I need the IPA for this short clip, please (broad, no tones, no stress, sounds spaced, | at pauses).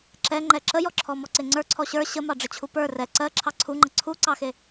ǁ ɛ ŋ͡ǃ ɛ ǁ ə j ɔ ǁʰ ɔ m ɔ ǀ e ŋ͡ǀ ə˞ ǀʰ ɔ ɕ ə˞ ɕ ə m ɑ ɖ͡ʐ ə t͡ɕʰ u p ə˞ r ɛ ǀ ɜ ǁʰ ɑ ǀʰ u ŋ͡ǃ ə ǀʰ u ǀ ɑ x e